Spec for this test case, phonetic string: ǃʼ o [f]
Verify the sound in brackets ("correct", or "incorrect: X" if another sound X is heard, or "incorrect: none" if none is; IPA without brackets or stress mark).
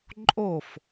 correct